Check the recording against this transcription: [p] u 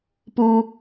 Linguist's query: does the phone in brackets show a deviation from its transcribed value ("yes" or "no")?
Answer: no